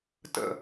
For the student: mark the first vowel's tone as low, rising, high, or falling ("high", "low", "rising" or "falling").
low